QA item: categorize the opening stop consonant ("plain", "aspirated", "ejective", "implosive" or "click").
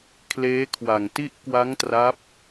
aspirated